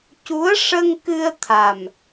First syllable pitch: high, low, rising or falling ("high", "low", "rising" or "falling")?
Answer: rising